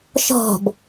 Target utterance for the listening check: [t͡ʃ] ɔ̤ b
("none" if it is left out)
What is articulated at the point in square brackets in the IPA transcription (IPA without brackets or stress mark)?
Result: ʃ